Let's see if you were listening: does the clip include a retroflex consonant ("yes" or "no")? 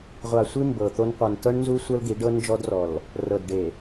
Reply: yes